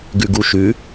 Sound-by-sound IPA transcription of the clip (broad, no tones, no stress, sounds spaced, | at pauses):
ɡ ʉ ɡ u ʃ ʉ